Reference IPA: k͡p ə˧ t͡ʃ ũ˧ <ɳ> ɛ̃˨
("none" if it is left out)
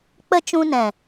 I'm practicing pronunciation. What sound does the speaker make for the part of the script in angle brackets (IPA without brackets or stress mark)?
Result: n